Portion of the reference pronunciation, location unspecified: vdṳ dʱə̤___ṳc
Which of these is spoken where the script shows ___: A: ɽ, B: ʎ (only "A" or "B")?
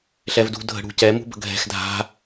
A